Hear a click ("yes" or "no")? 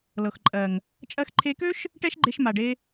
yes